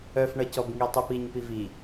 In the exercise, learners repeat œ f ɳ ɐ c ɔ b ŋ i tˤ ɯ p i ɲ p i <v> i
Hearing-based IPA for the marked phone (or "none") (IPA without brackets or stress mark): v